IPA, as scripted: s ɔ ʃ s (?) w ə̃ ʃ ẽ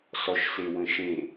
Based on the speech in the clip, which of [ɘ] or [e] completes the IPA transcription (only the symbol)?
e